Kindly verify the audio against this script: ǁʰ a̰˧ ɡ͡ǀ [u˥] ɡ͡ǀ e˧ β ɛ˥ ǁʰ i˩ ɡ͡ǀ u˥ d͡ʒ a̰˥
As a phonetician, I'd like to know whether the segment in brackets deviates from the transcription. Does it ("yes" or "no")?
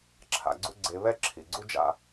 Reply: no